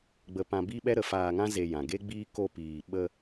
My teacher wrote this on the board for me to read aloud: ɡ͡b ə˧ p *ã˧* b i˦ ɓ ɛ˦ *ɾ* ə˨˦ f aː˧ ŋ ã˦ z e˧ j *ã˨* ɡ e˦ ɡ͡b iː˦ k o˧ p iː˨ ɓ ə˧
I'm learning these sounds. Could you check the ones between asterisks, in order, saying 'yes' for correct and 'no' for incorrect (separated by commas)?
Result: yes, yes, yes